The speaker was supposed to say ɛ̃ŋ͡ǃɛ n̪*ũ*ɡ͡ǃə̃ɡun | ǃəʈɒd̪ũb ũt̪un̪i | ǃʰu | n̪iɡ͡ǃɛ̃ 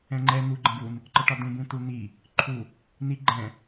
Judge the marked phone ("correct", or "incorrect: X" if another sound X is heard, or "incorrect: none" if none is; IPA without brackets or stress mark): incorrect: u